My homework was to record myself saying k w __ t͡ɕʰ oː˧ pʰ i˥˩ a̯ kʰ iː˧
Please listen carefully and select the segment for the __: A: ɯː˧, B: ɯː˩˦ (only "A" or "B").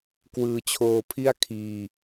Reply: A